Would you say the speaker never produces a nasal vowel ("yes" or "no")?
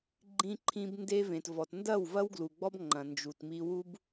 no